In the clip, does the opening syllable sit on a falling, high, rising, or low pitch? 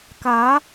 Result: rising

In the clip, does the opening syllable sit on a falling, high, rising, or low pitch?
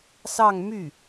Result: falling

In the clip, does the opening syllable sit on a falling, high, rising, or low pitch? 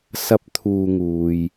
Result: high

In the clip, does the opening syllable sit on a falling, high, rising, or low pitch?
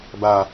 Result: low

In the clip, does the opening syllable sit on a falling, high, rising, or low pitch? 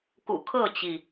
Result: low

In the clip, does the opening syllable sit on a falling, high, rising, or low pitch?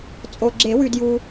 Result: low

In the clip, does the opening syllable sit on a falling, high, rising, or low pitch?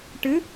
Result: rising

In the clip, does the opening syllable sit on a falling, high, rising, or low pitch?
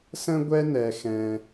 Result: high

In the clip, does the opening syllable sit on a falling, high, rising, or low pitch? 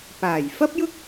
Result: low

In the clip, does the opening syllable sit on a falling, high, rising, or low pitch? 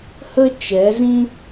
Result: high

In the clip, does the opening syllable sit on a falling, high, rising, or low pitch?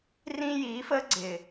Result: high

